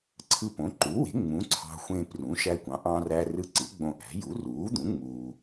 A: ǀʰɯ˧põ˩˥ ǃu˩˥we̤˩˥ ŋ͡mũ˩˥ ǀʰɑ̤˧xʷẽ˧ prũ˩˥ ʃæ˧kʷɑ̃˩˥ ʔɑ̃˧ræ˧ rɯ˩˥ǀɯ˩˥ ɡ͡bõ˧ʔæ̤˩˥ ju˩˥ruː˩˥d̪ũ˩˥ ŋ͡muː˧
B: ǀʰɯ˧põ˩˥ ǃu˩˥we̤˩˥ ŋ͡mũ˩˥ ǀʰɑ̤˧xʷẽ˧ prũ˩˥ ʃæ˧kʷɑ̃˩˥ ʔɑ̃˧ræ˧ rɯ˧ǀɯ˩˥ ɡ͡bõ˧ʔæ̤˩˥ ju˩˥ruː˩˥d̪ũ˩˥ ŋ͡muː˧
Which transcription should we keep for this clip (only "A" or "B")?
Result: B